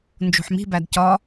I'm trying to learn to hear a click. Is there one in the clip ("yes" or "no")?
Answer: no